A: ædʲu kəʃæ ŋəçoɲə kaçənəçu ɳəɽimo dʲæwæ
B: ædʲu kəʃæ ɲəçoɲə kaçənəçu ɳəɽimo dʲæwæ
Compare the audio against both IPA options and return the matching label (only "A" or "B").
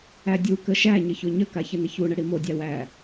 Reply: B